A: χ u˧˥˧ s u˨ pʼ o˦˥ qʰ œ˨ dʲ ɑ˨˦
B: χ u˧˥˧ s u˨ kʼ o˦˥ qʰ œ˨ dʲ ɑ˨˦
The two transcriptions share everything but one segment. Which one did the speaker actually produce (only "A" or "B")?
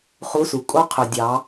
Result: B